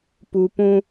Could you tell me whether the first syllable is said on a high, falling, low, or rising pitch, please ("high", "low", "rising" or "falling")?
high